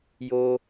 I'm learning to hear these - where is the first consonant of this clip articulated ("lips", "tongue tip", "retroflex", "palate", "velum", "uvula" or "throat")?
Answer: palate